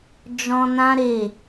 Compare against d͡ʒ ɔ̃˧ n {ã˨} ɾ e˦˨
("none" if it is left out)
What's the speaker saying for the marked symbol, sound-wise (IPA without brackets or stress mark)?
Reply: ã˦